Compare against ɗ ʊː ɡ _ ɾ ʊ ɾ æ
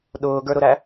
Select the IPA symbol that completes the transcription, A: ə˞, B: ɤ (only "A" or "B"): A